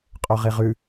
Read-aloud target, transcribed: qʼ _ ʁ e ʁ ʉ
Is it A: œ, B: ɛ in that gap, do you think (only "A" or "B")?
A